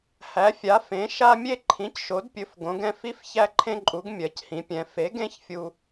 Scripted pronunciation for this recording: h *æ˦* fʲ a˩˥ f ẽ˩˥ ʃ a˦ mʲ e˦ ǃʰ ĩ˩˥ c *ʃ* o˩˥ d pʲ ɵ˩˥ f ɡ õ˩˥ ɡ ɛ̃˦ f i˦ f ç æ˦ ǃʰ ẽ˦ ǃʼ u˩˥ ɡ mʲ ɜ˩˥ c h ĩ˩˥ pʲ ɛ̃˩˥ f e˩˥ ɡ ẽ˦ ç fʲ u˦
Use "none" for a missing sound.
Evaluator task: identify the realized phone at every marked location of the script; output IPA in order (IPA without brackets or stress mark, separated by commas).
æ˩˥, ʃ